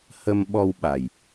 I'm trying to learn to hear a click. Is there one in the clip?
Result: no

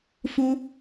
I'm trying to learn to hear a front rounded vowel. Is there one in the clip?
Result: no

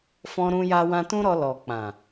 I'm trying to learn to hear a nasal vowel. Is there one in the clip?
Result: yes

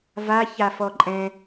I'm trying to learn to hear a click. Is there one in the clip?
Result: yes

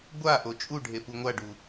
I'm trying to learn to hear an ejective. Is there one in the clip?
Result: yes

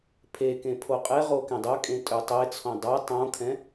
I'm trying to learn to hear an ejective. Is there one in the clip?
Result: yes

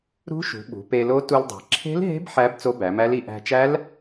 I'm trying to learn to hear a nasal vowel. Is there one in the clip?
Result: no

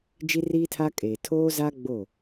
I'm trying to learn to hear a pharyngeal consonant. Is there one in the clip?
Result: no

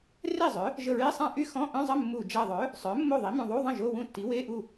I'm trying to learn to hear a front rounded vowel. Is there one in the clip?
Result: yes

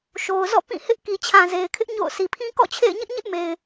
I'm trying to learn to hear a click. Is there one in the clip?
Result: no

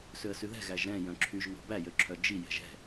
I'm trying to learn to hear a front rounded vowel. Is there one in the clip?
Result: yes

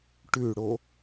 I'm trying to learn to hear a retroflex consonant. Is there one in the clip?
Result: yes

